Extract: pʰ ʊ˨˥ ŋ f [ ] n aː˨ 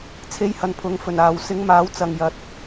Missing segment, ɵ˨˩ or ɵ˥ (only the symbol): ɵ˨˩